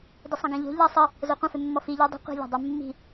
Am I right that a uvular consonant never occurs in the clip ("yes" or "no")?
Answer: no